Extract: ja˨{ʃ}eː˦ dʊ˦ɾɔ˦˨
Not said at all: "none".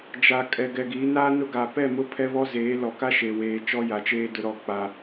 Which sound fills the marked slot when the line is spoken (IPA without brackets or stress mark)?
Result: t͡ʃ